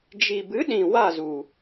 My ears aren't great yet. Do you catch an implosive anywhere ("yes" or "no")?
yes